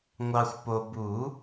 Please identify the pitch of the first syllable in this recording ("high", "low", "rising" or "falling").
low